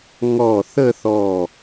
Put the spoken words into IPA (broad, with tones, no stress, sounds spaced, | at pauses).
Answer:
ŋ ɔ˧˩ θ ə˥˧ θ ɔ˧˩